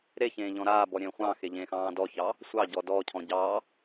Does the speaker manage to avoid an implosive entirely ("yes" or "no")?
yes